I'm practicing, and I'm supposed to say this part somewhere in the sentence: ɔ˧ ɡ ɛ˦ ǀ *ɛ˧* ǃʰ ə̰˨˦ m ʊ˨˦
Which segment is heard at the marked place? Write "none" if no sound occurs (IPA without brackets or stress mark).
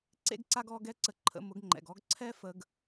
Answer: ə˧